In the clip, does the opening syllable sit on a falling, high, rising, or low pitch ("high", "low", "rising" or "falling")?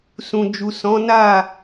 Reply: low